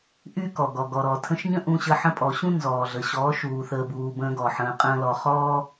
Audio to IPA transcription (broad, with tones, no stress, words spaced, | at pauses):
ʔy˦kɔ˨ɡɔ˨ ɡɔ˨ɾɔ˨tʰə̃˧ʃɲə̃˦ ʔũ˧ɕə˧ ħə̃˧pʼɔ˨ɕũ˦ nzɔː˨ɮə˨ ɕɔː˨˦ʃuː˨ θəː˨buː˨ bə̃ː˧ ɡɔ˨ħə̃ː˧qʼə̃ː˦lɔ˧ χɔː˦